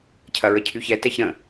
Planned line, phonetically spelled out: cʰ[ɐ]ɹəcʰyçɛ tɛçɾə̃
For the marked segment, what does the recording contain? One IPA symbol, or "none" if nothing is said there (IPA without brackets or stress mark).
ɐ